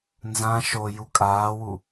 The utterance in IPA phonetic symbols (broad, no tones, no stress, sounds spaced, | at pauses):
n z ã ʃ o j u kʼ aː w u